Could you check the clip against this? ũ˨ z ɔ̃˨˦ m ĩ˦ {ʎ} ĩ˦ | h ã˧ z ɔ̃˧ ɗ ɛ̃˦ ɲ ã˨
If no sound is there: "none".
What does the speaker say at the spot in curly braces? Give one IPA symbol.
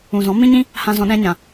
ɲ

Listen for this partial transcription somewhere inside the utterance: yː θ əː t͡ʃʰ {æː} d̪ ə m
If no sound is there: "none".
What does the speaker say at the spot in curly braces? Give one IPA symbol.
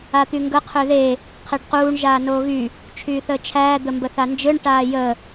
æː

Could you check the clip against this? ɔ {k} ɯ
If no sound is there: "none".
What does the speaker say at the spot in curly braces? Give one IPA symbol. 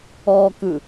k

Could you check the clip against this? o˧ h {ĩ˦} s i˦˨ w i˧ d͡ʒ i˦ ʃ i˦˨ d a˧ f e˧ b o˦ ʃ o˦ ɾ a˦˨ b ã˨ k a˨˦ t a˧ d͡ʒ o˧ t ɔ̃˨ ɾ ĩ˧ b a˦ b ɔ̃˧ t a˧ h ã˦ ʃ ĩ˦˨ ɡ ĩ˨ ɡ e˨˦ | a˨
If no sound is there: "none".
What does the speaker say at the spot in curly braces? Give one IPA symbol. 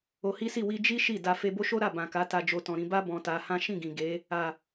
i˦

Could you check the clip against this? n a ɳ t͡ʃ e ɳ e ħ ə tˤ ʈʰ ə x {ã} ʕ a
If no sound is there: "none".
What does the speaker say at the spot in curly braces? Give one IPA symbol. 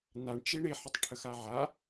a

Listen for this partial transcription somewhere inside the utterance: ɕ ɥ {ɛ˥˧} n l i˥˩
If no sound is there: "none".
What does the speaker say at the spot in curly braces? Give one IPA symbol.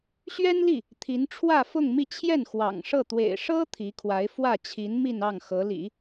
ɛ˥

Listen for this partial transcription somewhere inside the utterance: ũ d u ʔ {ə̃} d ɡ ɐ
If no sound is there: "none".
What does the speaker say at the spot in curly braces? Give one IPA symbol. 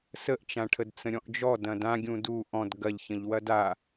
ɔ̃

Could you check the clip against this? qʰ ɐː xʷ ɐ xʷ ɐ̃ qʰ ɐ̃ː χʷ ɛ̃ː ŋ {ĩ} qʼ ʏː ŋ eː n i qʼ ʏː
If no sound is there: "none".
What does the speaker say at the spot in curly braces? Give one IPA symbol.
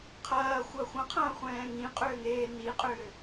ĩ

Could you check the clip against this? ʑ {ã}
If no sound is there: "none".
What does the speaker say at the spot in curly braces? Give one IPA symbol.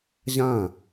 ã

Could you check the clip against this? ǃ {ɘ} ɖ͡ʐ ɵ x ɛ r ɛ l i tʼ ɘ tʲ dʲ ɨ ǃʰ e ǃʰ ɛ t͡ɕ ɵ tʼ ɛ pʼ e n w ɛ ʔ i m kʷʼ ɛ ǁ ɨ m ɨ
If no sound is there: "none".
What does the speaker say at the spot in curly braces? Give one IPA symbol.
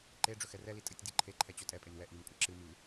e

